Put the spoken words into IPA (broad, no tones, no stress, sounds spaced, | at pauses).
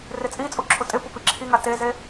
r ɪ t͡sʼ i t͡sʼ u ǁʰ ʊ tʼ ɪ p ʊ p i ǁʰ i ŋ a t e z e